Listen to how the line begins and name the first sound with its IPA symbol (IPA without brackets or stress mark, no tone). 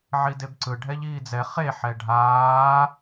ʕ